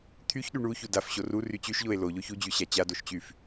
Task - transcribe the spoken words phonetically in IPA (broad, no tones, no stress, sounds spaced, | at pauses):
t̪ʰ y ç ɗ y ɳ u ç u d a f ɕ o r u r y t͡ɕ y ʃ ʎ o e̯ l o ʎ o ç u d͡ʑ y ɕ a t͡ɕ a d o ʃ t͡ɕ y f